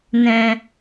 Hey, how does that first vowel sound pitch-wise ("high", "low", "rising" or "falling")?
low